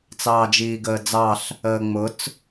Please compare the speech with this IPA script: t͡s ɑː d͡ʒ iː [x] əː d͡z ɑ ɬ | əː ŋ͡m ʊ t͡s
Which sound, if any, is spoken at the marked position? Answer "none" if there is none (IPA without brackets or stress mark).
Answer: ɡ